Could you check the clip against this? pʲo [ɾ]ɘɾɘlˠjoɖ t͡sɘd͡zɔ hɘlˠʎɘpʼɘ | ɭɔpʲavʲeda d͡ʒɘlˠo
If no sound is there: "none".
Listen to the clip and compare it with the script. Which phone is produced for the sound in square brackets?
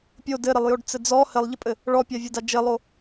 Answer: d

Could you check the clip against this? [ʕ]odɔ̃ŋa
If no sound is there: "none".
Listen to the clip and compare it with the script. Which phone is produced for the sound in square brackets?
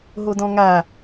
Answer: ɦ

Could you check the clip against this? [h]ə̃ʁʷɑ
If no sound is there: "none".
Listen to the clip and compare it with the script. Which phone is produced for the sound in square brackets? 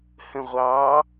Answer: h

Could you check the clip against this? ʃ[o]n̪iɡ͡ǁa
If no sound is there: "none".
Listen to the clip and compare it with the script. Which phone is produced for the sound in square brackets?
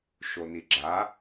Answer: o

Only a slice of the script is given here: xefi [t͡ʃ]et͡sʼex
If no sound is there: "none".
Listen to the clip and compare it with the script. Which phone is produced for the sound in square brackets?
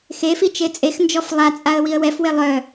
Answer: t͡ʃ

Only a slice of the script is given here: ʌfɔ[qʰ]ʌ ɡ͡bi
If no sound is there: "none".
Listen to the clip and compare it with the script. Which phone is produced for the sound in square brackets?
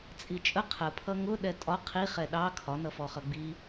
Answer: χ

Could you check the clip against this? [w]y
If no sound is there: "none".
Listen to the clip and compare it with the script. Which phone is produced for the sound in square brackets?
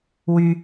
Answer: w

